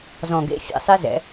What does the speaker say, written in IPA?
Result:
z ɔ̃˨˩ ɡ ḛ˧˥˧ fʲ ɛ̰˥˨ sˤ e˥ z ɛ̰˨˦

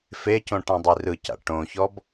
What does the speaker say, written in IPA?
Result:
f e c õ ʈ ã dˤ i r ɯ c a̰ ʈ õ ç ɔ b

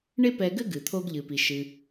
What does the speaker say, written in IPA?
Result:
ɳ e˥ p ɛ˧ ɡ ɘ˥ ɡ ɨ˩ t̪ʰ o˧ ɡ ʎ ɨ˩ p i˩ ʃ ɨ˩

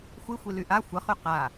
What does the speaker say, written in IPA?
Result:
xʷ i xʷ i l y ʔ a xʷ ə χ y q a

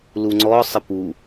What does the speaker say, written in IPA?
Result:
l u ŋ͡ǀ ɔ sˤ ə p u

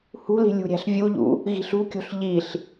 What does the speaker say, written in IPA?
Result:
h ṳ l i̤ lʲ ṳ ɾʲ æ̤ ɬ vʲ u ʎ ṵ | ɣ i̤ ɬ ṳ kʲ o̤ ɬ ʎ i ɬ

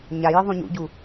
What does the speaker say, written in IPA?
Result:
ɲ a j ɯ ðˤ ũ ɲ ṵ ɟ u

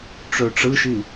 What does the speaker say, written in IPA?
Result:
ʈ͡ʂ ø ʈ͡ʂ ɯ ʃ i

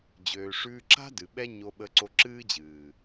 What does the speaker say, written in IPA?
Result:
d͡ʑ øː˨ ʂ ʉː˧ ǁ a̤˦ d ɨ˨ ɓ ɛ˦ ɲ o˧ ɓ ə˧ ǀ o˧ ǁ ɨː˦ d͡ʑ ɨː˨

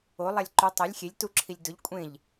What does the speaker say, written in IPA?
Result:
o lˠ a lʲ ǃ u tˤ ɐ lʲ xʲ e lʲ t u ǁʰ i lʲ d ʊ ʎ kʷʼ ẽ ʎ

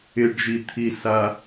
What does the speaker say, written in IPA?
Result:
ɪ ɖ ʒ i t̪ʰ i s a

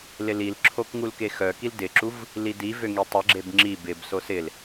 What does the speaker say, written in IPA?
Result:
l ɪ l i l ǁʰ o k ŋ u l k e x œ k i l d ɪ ǁ u v | l i d i v ø ŋ i tˤ ɪ ɡ͡ǁ e b ŋ͡ǁ i b ɪ b s o s ɪ l

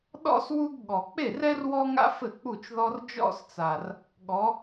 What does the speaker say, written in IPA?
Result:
ɗ ɔ̰˥ s w u˥ ɡ ɠ ɔ˨˩ k͡p e˥˩ r ɛ˥ r w ɔ˥ ŋ a̰˥ f ɘ˥˩ k͡p u˥˩ t͡ʃ ð ɔ˥ r d͡ʒ ɔ̰˥ s t͡s a˨˩ r | ɠ ɔ˨˦

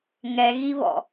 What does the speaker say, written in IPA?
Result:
ŋ ɛ ɣ i β ɔ̰

